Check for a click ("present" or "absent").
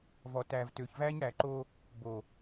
present